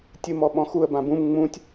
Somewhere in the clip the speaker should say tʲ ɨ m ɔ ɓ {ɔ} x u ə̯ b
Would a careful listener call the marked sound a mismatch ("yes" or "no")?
yes